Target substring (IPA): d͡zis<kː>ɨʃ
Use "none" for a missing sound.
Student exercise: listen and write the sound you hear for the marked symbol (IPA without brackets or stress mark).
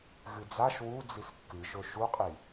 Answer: kː